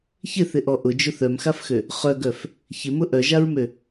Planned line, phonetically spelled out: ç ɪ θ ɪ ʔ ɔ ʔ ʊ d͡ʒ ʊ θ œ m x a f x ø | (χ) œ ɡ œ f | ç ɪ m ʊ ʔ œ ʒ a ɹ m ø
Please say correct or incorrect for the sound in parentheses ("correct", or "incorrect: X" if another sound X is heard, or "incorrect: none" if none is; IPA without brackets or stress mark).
correct